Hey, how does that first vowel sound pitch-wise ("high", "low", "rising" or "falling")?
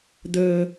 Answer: high